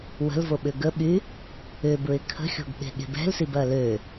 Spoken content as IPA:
w ə̤ l v o ɓ ʏ ɡ ə ɓ y | ʏ b ɹ ɪ kʰ ə̤ xʲ o̤ ɡ ɓ e̤ ɠ e̤ b ɛ̤ l s i b ɐ l ø

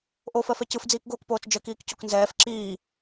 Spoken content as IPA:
ʔ o f ɜ f ɛ c ɯ f d͡z iː k ɡ oː k p oː t͡s d͡ʒ ɜ k iː k c o k n z ɛː f ǁ iː

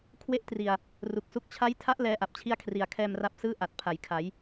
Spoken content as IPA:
kʰ w e˥˩ ʔ t r i˨˩ a̯ | r u˨˩ k̚ s u˦˥ k̚ t͡ɕʰ a˦˥ j tʰ a˦˥ ʔ l ɛː˦˥ ʔ a˨˩ p̚ t͡ɕʰ i˥˩ a̯ kʰ r i˨˩ a̯ kʰ ɛː˧ m r a˦˥ p̚ s ɯː˥˩ ʔ a˨˩ t̚ pʰ a˩˦ j kʰ a˩˦ j

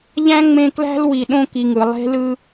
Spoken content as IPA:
ʎ æ̃˥ ŋ͡m ẽ˦ k l æ̤˥ l w i˨ ɗ õ˦ k i˨ ŋ ɯ˩ lˠ e̤˥ l ɯ˥

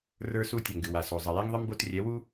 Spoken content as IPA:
r ə˞˦ s u˦ tʲ ɛ˨ ŋ ɡ ɨ˨ w a˨ s o˨ zˤ ə˨ j ɛ˦ ŋ ðˤ ɨ˦ m b o˦ t rʲ ɛ˨˦ w u˦

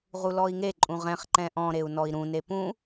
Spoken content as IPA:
ʁ u l ɔ i̯ ŋ e ǃʼ ũ ʁ ɛ̃ χ ǃ ɛ̃ ʔ ɔ̃ ɾ e u̯ n ɔ i̯ ɾ ũ n e p ũ

